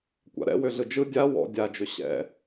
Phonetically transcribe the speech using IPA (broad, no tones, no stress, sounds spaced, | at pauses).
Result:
kʷ a̰ ɾ ɛ̰ w ʏ ɮ ɯ d͡ʒ ɯ dʲ a w ɔ̰ dʲ a d͡ʒ ʏ ɕ ɛ̰